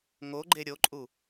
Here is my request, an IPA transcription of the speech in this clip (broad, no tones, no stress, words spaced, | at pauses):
ŋoɡ͡ǃe ɾʲoǃʼu